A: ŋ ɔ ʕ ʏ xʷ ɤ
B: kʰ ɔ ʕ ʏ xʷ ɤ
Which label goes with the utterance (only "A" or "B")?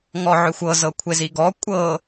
A